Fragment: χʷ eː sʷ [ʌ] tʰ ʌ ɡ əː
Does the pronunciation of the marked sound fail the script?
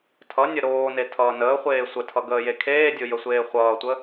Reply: yes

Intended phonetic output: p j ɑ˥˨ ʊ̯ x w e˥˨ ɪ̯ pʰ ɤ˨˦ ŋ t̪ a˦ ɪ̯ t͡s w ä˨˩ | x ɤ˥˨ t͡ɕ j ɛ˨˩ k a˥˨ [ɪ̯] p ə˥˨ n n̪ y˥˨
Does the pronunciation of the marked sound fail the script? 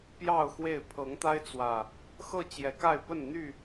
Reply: no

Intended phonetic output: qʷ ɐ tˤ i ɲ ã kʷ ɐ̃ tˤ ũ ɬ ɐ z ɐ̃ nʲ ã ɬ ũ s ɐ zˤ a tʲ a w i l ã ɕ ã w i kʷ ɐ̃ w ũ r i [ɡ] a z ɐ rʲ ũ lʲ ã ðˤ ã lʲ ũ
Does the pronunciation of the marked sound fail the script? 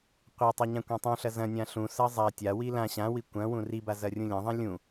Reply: yes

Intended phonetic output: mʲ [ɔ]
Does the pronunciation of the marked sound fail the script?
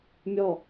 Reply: no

